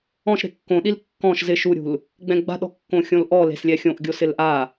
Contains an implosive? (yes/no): yes